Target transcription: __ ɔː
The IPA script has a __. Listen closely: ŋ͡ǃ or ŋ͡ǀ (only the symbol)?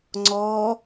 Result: ŋ͡ǀ